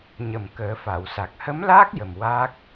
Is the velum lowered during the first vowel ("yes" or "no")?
no